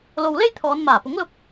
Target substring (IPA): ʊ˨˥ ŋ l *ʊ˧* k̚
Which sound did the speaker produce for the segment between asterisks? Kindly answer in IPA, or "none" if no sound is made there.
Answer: ʊ˥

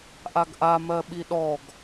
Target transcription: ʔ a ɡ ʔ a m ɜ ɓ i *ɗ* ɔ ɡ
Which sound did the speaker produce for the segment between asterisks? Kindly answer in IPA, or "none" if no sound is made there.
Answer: ɗ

